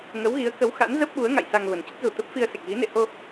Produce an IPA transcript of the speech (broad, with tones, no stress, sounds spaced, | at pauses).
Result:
ŋ ə˨˦ w ɣ i˨˦ ə̯ k ə˨˦ w x a̰˧˥ n z ə˦˥ p̚ ɓ u˨˦ ə̯ ŋ a̰˧˨ j s a˧ ŋ v ə˨˩ n t͡ɕ ə˦˥ t̚ z u˨˩ t̪ ə˦˥ p̚ f i˧ ə̯ s e˨˩ k̚ ɣ i˨˦ n ḛ˧˨ h o˧